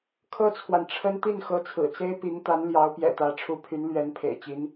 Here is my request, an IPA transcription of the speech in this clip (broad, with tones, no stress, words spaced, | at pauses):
kʰɤ˥t͡sʰwa˨n ʈ͡ʂʰə˥n t̪i˥˩n xɤ˧˥t͡sʰɹ̩˨˩t͡se˥ɪ̯pi˧˥ŋ t̪a˧˥nljɑ˧˥ʊ̯pjɛ̰˨˩ t̪ä˧˥ʈ͡ʂʰu˧˥pʰy˧˥n lɥɛ˧˥npʰḛ˨˩ɪ̯t͡ɕi˧˥n